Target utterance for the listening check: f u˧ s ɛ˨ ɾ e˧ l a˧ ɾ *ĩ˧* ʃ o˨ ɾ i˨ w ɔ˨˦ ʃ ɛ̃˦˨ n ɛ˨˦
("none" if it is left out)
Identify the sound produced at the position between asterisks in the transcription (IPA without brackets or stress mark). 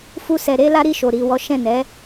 i˧